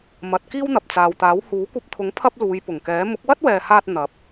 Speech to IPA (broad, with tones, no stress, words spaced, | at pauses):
mɐ˨˥t̚ kiː˥wn̪ɐ˨p̚ t͡saː˨wt̪aː˨˥w huː˨˥kʷɐ˧p̚t̪ʰʊ˨˥ŋ pʰɐ˥p̚luː˨˧jpʊ˨˩ŋ kɛː˨˥ mʊ˨˥k̚wɐ˥t̚wɛː˨haː˧t̚ n̪ɐ˨˥p̚